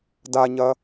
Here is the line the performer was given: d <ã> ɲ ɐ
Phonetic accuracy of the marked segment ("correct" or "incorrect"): incorrect